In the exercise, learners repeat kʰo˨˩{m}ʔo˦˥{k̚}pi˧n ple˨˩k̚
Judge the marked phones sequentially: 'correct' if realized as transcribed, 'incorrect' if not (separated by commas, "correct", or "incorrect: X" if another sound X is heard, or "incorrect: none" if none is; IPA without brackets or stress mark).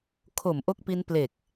correct, correct